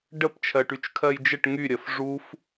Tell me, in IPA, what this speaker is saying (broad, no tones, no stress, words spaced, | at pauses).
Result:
ɖəp t͡ʃʰɜʈyt͡ʃkʰɜjd͡ʒəʈ ŋy ɾʲɜfʐuf